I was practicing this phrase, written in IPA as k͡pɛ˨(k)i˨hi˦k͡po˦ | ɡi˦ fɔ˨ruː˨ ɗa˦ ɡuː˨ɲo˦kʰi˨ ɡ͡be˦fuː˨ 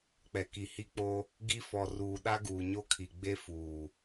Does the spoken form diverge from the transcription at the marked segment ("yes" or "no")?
no